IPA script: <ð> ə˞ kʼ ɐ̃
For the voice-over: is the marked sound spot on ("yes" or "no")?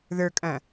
yes